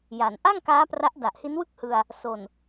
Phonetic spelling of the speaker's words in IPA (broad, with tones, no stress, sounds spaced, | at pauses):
j a˩˦ n ʔ a˥˩ ŋ k aː˦˥ p r a˦˥ ʔ d a˨˩ ʔ h i˦˥ n w ɯ˥˩ k̚ h ɯ˧ a̯ | s o˨˩ n